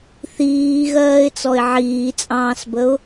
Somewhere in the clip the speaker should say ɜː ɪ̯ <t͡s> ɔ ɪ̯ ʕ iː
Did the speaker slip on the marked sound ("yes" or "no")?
no